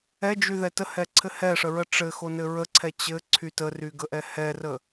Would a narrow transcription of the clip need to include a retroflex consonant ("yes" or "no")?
yes